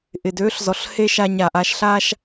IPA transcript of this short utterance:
ʔ ɪ˨ d øː˦ ɬ z ɔ˨ ɬ h e˧ ʃ a˧ ɲ a˨ ʔ a˧ ʃ ɬ a˦ ʃ

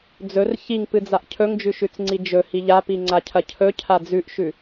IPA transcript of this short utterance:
d͡z ɵ r ç i ŋ p ɨ d͡z a ʔ cʰ ɵ ŋ d͡ʒ ʉ ʃ ʉ t͡s ŋ͡ǀ i d͡ʒ ɵ h i ʎ a p i ŋ͡ǀ a cʰ ɐ cʰ ɵ cʰ a d͡z ʉ ʔ ʃ ʉ

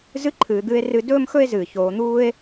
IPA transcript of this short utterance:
z ɨ˥ ǃʰ ɨː˩˧ d̪ ɨ˧˥ e̯ r ɨ˧˥ d ɵː˥ m x ɵ˥ e̯ z ɨː˩ ç oː˩˧ n̪ uː˥ e̯

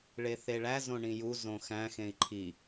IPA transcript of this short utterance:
ɭ e θ e ɭ æ z õ ɳ ĩ j u z õ x æ̃ x ẽ i̯ ǃʰ i

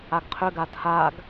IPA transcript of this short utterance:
a ɡ qʰ ʏ ɡ a tʰ a ɡ

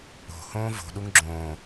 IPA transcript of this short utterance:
o̤ h õː v o̤ ɗ u ŋ ɡ͡ǁ õː

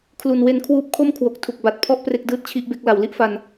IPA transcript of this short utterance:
kʰ l u˨˩ n w e˧ n kʰ w uː˦˥ p̚ kʰ o˥˩ m kʰ w o˨˩ k̚ tʰ u˨˩ k̚ b a˨˩ t̚ pʰ ɔ˥˩ ʔ p r e˥˩ k̚ d ɯː˥˩ t̚ t͡ɕʰ i˥˩ ʔ b e˥˩ k̚ l a˩˦ w l i˥˩ ʔ f a˧ n

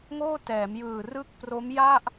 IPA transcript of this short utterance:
ŋ oː˥˩ t ɛː˩˦ m j ɯː˨˩ r ɯ˥˩ k̚ p r o˦˥ m j a˥˩ ʔ

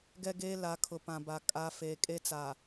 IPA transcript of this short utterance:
ɡ ɛ˦ ɡ eː˦ l a˨˦ kʰ ʊ˨ p ã˨ b a˨ kʼ a˨ f eː˨ kʼ e˦ t͡s a˨

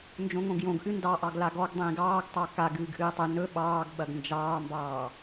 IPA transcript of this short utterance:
n d͡ʒ õ ŋ õ ɡ j õ ɡ ʔ ɨ n d ɑ ʔ ɑ ɡ l a ɡ ɔ ɡ dˤ ĩː ɡ ɑː ɡ tˤ ɑ k a ɡ ɨː ɡ ʔ ɨː tˤ ɵ n ɵ ɓ ɑː ɡ ɓ ɐ ɡ n d͡ʒ ɑː m b ɑː

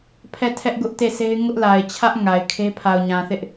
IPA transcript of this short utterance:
pʰ ɛ˦˨ tʰ ɛ˦ ʔ ɡ ʊ˦ ʔ t e˦˨ s e˦ ɪ̯ ŋ ʊ˦ ʔ l a˨ ɪ̯ t͡ɕʰ ä˦ ʔ ŋ a˨ ɪ̯ kʰ e˦ pʰ a˨ ʊ̯ ɲ ã˨ θ ɪ˦ ʔ

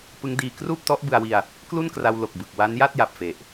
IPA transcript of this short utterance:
p ɯ˦˥ ŋ d iː˧ k r uː˥˩ p̚ t ɔ˦˥ ʔ b ɯ˧ a̯ w i˧ a̯ | k l u˥˩ n k r a˧ w l o˨˩ k̚ b ɯ˨˩ k̚ w a˦˥ n j a˥˩ t̚ j a˨˩ p̚ f e˨˩ ʔ

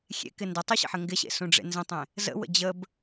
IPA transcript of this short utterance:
xʲ ḛ k ɪ n d ə tˤ u ɕ ə̰ ħ ə ŋ ɡ ɪ ɕ ḛ s ũ ɖ͡ʐ ḛ n z ə̃ tˤ ẽ | z ə̰ w ə̰ d͡ʑ ə b

